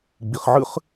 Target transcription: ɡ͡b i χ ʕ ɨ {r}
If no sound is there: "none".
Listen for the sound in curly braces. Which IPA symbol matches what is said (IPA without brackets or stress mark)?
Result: χ